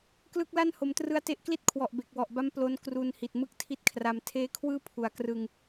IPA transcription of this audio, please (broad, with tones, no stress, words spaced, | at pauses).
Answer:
klɯ˥˩k̚la˥˩n ho˩˦mtrɯ˧a̯te˦˥ʔ kli˥˩t̚kʰwɔ˨˩ʔ be˨˩k̚wɔ˨˩ʔba˦˥m plo˦˥n kru˧n hi˨˩t̚mɯ˥˩k̚tʰi˦˥t̚kʰra˧m tʰeː˦˥kʰwɯː˥˩pʰu˩˦a̯krɯ˧ŋ